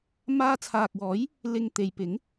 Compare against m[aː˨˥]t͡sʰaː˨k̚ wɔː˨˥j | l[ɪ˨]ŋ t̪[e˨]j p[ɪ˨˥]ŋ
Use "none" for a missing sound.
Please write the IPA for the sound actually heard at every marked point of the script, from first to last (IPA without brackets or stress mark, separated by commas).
aː˧, ɪ˨, e˨, ɪ˨˥